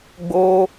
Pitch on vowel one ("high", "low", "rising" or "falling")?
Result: high